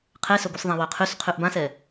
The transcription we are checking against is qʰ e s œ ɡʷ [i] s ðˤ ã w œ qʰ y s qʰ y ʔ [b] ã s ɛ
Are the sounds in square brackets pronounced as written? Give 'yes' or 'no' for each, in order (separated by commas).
no, yes